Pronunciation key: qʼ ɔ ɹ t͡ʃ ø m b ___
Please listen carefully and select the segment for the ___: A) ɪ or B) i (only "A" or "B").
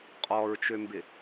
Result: A